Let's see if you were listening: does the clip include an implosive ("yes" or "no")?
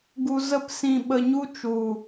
yes